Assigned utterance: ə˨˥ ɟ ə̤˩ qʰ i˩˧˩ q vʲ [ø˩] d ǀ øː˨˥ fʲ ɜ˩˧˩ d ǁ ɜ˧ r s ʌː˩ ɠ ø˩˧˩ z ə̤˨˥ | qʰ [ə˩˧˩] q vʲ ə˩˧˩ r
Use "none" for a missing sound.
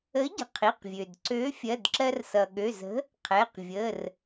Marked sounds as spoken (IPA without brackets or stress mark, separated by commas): ø˩, ɛ˩˧˩